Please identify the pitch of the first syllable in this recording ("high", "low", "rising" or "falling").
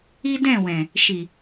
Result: high